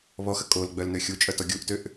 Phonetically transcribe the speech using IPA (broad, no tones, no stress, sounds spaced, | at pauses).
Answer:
β ɔ x ə kʼ o l ɡ͡b œ l n ø xʲ u t͡ʃʼ œ t ɔ ɡʲ u ʔ t ø ʔ